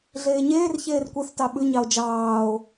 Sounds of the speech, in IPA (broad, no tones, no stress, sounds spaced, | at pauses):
ɮ eː ɲ eː r ç eː r kʷ ɛ θ t ɑ ɓ ʉ ɲ ɑ o̯ d͡ʒ ɑː o̯